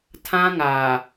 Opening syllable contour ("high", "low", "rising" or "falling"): high